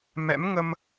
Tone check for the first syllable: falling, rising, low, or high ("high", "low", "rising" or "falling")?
rising